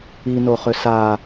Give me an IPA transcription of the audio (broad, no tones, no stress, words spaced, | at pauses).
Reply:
inoχʏ sa